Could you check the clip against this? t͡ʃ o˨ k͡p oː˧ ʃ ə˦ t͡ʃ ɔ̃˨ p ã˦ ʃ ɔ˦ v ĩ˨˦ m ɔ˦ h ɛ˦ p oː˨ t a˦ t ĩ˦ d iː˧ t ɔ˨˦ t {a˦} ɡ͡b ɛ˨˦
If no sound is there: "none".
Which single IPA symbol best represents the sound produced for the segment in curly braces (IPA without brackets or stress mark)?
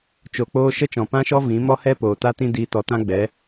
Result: ã˦